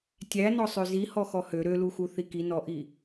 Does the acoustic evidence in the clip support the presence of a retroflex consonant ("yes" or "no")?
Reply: no